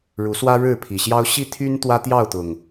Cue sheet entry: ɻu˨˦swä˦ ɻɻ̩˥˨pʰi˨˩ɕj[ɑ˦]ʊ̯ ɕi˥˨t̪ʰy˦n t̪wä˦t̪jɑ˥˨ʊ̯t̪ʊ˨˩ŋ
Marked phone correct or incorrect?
correct